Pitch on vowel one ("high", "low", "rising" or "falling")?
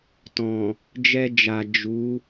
low